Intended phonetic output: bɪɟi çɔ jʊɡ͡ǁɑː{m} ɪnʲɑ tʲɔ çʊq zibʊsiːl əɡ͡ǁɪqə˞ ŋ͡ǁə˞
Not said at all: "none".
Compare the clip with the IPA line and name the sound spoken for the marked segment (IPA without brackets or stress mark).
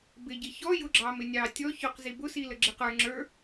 m